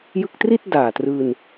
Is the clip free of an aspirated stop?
yes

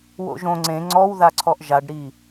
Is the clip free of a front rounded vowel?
yes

